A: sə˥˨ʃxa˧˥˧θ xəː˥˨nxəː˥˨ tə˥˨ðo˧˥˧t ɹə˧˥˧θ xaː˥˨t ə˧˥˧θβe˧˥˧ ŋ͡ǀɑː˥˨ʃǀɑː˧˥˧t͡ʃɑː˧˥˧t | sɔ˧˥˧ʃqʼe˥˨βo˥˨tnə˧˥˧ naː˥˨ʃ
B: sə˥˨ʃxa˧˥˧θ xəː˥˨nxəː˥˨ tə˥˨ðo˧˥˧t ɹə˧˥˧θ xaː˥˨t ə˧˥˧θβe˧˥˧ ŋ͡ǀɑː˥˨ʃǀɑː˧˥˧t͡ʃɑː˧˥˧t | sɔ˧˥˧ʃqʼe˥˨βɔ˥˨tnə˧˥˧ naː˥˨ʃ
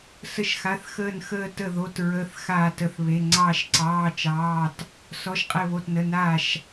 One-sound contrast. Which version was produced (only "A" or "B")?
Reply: A